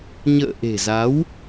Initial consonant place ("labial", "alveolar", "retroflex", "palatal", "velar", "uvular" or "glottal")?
palatal